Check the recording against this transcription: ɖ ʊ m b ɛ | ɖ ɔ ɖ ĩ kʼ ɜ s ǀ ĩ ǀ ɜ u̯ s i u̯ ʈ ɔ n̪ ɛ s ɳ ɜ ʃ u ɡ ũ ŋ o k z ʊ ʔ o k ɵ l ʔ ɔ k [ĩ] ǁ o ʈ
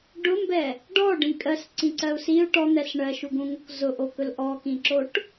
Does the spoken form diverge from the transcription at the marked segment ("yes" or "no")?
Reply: no